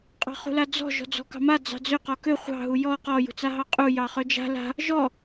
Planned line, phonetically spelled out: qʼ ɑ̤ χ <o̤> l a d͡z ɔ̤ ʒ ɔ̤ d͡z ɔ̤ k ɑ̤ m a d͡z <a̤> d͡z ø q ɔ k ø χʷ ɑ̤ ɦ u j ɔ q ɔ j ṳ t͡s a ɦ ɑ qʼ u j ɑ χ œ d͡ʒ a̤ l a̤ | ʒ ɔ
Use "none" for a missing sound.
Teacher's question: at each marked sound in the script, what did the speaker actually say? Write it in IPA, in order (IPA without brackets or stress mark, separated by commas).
ṳ, ɑ̤